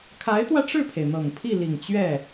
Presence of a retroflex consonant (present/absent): present